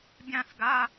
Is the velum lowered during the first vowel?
yes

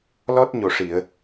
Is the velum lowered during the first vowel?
no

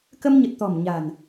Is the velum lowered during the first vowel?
no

